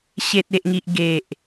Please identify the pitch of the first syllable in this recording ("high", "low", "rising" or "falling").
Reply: low